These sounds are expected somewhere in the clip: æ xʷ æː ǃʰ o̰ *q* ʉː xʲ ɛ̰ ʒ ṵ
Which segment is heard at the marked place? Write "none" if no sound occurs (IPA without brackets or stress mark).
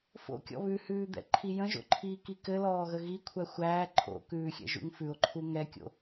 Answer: k